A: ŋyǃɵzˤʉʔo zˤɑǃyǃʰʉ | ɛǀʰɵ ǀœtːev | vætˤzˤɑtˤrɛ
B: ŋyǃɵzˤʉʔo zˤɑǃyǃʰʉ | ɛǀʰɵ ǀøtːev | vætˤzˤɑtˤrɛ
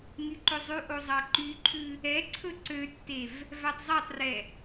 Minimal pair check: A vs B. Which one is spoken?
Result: B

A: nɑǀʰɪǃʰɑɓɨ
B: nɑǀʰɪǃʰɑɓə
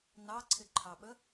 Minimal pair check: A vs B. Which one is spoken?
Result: B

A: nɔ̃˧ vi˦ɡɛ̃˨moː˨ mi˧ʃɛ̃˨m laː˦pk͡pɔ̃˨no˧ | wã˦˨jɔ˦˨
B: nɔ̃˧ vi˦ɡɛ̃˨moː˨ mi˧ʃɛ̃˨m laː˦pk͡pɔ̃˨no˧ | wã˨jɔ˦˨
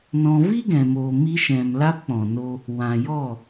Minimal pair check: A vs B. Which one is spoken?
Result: B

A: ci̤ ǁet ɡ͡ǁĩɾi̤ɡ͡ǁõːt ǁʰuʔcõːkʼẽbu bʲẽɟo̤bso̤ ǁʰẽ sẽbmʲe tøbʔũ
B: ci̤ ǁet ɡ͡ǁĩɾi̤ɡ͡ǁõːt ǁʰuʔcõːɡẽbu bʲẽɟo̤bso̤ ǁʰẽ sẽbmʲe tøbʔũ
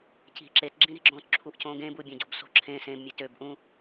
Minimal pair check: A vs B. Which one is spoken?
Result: B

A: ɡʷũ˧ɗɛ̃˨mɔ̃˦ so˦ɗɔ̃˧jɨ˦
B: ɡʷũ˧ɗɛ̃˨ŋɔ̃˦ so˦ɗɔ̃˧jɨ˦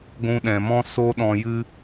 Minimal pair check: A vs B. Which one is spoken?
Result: A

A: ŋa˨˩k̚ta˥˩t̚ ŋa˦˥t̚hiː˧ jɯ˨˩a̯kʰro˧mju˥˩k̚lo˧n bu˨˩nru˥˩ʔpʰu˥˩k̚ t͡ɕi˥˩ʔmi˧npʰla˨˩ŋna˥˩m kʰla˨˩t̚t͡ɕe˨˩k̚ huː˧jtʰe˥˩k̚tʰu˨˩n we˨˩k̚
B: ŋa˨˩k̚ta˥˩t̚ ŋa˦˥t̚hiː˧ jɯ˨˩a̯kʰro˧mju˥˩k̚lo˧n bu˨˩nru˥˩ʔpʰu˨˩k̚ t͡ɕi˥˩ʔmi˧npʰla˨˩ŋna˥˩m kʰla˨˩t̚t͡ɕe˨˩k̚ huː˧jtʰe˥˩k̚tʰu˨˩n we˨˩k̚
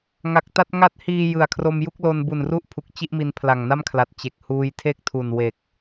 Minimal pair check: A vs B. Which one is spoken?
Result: B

